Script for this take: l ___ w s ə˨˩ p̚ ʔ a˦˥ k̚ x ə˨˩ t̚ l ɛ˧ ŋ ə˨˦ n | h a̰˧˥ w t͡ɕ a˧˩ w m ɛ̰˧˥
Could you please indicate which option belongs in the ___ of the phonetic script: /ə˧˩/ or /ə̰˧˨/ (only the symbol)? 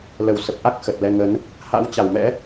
ə˧˩